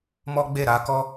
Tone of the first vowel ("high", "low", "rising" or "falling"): high